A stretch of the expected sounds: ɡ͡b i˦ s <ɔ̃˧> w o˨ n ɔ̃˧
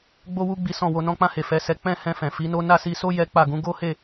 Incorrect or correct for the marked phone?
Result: incorrect: ɔ̃˦˨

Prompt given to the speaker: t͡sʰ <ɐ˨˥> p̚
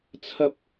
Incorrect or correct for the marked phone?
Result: incorrect: ɐ˥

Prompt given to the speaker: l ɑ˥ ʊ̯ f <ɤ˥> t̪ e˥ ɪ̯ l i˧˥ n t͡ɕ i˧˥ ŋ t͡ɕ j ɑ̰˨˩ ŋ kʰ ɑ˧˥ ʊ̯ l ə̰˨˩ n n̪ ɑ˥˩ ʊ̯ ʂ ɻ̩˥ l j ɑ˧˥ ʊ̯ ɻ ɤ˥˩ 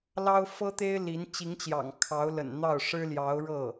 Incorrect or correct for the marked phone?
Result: correct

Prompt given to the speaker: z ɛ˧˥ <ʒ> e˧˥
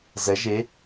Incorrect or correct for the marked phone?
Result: correct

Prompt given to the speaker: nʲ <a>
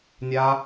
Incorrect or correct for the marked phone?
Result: correct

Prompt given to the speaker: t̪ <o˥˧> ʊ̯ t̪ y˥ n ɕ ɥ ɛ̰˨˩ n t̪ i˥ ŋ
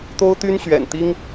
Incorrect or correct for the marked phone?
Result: incorrect: o˥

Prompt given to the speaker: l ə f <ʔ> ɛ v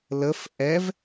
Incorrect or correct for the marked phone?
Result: correct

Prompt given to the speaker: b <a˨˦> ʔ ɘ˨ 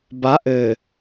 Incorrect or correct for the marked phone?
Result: correct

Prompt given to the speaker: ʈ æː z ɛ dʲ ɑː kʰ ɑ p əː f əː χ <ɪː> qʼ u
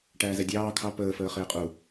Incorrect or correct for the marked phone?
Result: correct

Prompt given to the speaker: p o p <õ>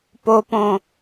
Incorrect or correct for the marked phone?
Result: correct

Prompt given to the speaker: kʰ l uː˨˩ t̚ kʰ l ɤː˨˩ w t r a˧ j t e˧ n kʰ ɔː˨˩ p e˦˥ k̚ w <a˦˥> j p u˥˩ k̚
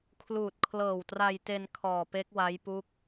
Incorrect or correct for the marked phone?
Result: correct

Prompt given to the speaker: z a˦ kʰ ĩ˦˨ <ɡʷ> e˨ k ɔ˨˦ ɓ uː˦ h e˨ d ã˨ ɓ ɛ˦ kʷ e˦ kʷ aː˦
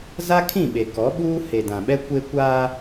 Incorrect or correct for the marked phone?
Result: incorrect: ɓ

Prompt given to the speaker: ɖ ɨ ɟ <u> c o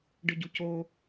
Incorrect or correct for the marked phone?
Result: correct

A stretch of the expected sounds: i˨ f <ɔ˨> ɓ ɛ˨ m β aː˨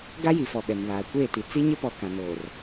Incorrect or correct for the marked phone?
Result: correct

